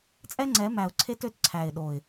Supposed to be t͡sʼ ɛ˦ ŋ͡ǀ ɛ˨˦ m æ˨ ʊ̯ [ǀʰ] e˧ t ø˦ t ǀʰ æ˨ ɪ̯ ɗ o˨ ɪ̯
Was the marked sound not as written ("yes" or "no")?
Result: no